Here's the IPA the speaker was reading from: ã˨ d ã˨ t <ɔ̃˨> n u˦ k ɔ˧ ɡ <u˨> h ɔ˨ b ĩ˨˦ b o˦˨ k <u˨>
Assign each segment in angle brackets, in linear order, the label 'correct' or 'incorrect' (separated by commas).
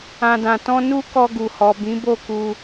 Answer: incorrect, correct, incorrect